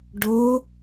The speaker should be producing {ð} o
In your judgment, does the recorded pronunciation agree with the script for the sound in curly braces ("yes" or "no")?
no